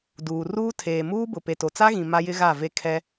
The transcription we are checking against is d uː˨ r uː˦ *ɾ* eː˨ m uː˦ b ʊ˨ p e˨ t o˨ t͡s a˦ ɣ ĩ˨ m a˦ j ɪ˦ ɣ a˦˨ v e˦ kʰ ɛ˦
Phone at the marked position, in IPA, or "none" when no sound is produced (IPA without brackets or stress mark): tʰ